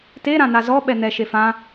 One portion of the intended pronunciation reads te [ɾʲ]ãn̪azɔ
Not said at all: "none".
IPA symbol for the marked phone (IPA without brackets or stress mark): ɾ